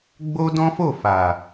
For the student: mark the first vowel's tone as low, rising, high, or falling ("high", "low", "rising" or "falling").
high